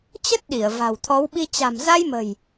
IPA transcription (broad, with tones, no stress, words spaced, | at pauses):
t͡ɕə˦˥t̚ɗi˧˩ə̯ va̤˨˩wt̪ʰɔ˨˦wɓi˧ t͡ɕa̤˨˩mza˧jmə̤˨˩j